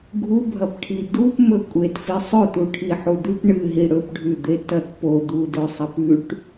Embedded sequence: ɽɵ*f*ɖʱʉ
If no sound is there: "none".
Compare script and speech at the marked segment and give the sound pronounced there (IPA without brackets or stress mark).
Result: p